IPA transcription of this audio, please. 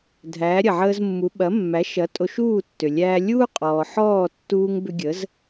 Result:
dʱ æː˩˥ ɾʲ ɐ˩ ʕ əː˧ z mː u˩˥ ɓ ɐ˩˥ mː æ˩˥ ʃ ɐ˩˥ tʼ o˧ ʃ uː˥˩ tː ʏ˩ lʲ æː˧ lʲ uː˥ qʼ ɔː˩ ħ ɔː˥˩ tː uː˧ ŋ b ʏ˧ ɡʲ ə˩˥ z

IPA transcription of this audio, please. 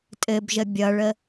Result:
tʼ ɘ b ʒ ə bʲ ʌ ɭ ə

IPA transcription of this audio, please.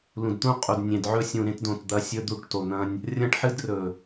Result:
l ũ˨ d t̪ ũ˦ qʼ u˨ d nʲ ẽ˨ d ʕ ɵ˦ sʲ ũ˨ ɾ ẽ˦ t d õ˨ t d̪ ɐ˦ sʲ ɵ˦ d̪ u˦˨ ʈ t o˨ n̪ ɐ̃˦ nʲ | rʲ ɐ̃˦ ʈ ħ ɨ˦ d r ɵ˨

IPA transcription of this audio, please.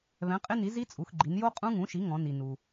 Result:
β ɛ̃˩˥ qʼ ɪ˦˥ n i˩˥ z i˦˥ t͡sʼ u˩˧ x ɡ͡ǃ i˩˧ n j o˦˥ qʼ ũ˦˥ ŋ ũ˩˥ ʃ i˩˥ ŋ ɔ̃˩˧ n i˩ n u˩

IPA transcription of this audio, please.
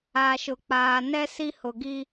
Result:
a˨ ʃ ʊ˨ k͡p aː˨ n ɛ˦ s i˦ h ʊ˨ ɡ i˦

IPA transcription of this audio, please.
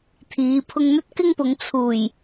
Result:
t̪ʰ iː˨˧ pʰ ʊ˧ ŋ n̪ ɵ˥ t̚ k ɪ˥ ŋ p ʊ˨˧ ŋ t͡sʰ uː˨˩ j

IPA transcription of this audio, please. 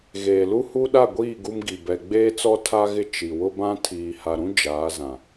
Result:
ɣ eː˨ l u˦ h u˦ ɗ a˦˨ ɡʷ iː˦˨ ɡ u˦ m ɡ i˨ b ɛ˨ ɡ͡b eː˦ t͡s ɔ˦ tʰ a˦ ɣ ɪ˦ t͡ʃ i˨ w ʊ˦ b ã˦ tʰ iː˨ h a˨ ɾ ũ˦ d͡ʒ aː˨˦ z ã˨

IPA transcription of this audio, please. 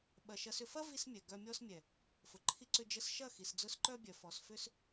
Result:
ɓ ɐ˨ ʃ ɐ˧ s ʏ˧ f ɐ˦ v i˦ s mʲ ɛ˨ ɡ œ˧ mʲ ɔ˦ s mʲ ɛ˨ | f ʊ˨ ǃʰ i˦ ǀ ʏ˦ d͡ʒ ə˦ s ʃ ɐ˦˨ x i˨ s d͡z ʊ˧ s ǃ œ˦ bʲ œ˨ f ɔ˨ s f ʏ˦ s

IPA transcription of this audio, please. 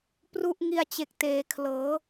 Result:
p r u˦˥ ʔ ŋ i˧ a̯ t͡ɕ e˨˩ k̚ t eː˩˦ kʰ l ɤː˩˦

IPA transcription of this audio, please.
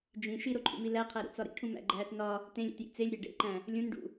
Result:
d͡ʒ ĩ ʃ i ɾ o ǃʰ ṵ m i l æ qʰ æ ɾ ṵ t͡s ɒ ɾ ḭ ʈʰ ũ m æ̰ ɡ͡ǃ æː t n ɒ | t ẽ lʲ ḛ t j ḭ t͡s e lʲ ɾʲ æ ɖ ḛ ǃ æ̃ | lʲ ũ n ɖ ṵ

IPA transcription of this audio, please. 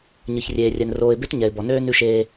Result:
ɲ ɨ˨ ç rʲ eː˨ rʲ ɛ˨ n r oː˨ ɪ̯ b e˦ t ɲ ɛ˨ ɪ̯ b ɔ˨ n øː˦ n ʉ˦ ʃ eː˦

